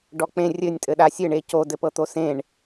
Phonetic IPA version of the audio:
ɖ ɔ k͡p ẽ rʲ ɘ nʲ tʼ ɘ ɗ a sʲ ɘ ɳ e c o d ɘ p ɤ t̪ o s ẽ ɳ

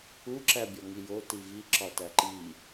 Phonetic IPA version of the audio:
u ǁ æ bʲ ɒ ŋ i j o t i v i ǁ ɒ t æ ǃ i

